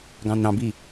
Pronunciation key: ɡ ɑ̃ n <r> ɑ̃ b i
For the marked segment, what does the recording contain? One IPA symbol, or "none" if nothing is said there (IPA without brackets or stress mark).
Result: ɾ